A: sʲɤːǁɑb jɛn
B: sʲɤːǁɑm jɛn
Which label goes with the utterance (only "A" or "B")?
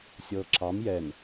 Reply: B